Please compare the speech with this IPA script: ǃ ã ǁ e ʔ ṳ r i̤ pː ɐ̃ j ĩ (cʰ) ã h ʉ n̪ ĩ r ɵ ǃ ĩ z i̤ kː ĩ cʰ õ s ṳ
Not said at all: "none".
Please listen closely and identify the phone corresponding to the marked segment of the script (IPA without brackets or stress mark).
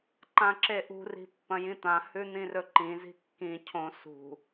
t̪